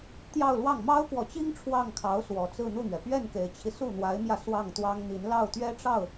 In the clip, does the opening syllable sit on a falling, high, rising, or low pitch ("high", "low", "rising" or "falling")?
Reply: falling